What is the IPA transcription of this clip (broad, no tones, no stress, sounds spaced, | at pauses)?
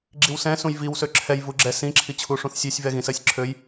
ɡ͡ǁ i w s ɛ̃ s ũ j v i w s ø ǁʰ ɛ j v u ɡ͡ǁ ɛ s ĩ ǁʰ i t͡ɕʰ u ʂ ũ θ sʲ ɛ sʲ v ɛ ɣ ĩ s ɜ sʲ ǁʰ ø j